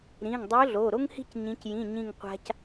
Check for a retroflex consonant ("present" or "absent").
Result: absent